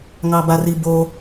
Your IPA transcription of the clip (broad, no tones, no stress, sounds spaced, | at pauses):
ŋ ɑ b a r i b o